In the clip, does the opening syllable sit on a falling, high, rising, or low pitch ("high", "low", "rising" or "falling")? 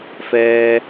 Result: low